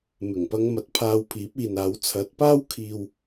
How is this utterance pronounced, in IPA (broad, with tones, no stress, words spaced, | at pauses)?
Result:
mɪ˨˩ŋpɐ˧ŋmɐ˨˥t̚ pʰaː˧wpʰiː˨˥p̚iː˨naː˨˥w t͡sʰɐ˨˥t̚paː˥w kʰiː˧w